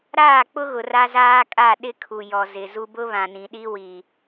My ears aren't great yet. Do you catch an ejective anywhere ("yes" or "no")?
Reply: yes